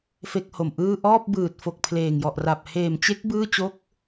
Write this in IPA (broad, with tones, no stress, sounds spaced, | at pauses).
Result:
f e˥˩ k̚ h o˨˩ m ʔ ɯː˥˩ ʔ ɔː˥˩ p̚ b ɯː˨˩ t̚ f o˨˩ k̚ pʰ l eː˨˩ ŋ j ɔ˨˩ ʔ r a˨˩ p̚ h eː˨˩ m t͡ɕ e˦˥ k̚ b ɯː˥˩ t͡ɕ o˥˩ k̚